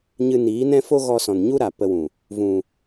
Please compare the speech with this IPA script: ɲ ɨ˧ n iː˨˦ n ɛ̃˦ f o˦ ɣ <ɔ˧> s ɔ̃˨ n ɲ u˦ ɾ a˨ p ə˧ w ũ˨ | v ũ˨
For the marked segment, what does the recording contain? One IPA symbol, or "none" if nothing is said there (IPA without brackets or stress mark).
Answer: ɔ˧